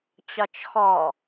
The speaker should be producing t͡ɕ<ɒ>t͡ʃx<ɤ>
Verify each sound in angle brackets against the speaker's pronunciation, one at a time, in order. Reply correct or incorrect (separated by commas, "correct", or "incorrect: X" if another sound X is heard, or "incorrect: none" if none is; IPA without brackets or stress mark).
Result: correct, incorrect: ɔ